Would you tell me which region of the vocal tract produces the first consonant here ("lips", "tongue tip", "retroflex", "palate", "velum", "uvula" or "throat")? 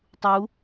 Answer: tongue tip